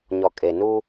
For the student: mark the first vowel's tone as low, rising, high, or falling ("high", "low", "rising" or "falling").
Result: low